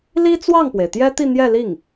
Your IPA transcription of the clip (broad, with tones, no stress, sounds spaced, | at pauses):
l i˥ t͡s w ɑ˥˩ ŋ p w e˩ ɪ̯ t̪ j ɛ˥ t̪ i˥˧ n̪ j ɛ˥˧ l i˥˩ ŋ